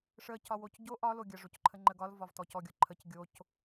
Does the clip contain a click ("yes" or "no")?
yes